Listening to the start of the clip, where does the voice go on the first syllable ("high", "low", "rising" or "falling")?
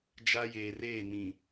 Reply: high